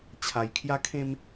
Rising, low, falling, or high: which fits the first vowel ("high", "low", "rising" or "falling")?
low